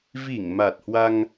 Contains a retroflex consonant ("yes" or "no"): no